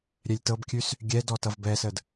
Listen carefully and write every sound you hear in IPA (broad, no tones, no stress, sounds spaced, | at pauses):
ɾʲ ɛ lʲ t ɤ b kʲ ʉ s | ɡʲ ɛ d ɔ t ʌ v b ɛ s ə d